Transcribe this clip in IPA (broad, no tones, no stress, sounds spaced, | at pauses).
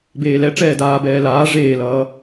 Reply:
b eː l ɛ ʈ͡ʂ ɛː d aː b ɛː l aː ʐ eː l ʌː